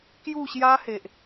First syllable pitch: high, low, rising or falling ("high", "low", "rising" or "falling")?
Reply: falling